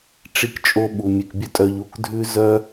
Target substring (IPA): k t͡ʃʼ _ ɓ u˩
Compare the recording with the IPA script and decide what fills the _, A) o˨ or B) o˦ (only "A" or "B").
B